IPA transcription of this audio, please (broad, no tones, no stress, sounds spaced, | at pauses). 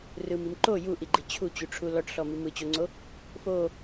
r ɯ m i m ǃ o j u ʔ i ɡ͡ǃ i t͡ɕʰ u t͡ɕ u ʈ͡ʂʰ u l ɔ ʈ ɬ ɔ m i m ɯ t͡ɕ o ŋ͡ǀ o | f o